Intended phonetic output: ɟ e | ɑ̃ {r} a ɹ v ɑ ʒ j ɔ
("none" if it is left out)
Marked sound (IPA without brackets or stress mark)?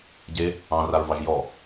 r